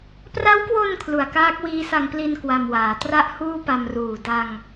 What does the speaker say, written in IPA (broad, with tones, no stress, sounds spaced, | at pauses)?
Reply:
p r a˦˥ w k w o˧ n kʰ l u˨˩ a̯ k aː˦˥ k̚ w iː˦˥ s a˧ ŋ p l i˧ n k w a˧ m w aː˩˦ t r a˥˩ ʔ h uː˥˩ p a˧ m r uː˨˩ d a˧ ŋ